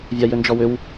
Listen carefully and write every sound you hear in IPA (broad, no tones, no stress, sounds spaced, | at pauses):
vʲ a j ʏ n d͡ʒ ɔ w ʏ w